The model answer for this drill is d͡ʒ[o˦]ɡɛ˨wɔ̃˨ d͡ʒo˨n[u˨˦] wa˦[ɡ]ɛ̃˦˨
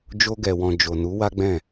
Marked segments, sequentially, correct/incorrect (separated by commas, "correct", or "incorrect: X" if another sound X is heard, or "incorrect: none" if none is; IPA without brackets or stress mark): incorrect: o˧, correct, incorrect: ɡ͡b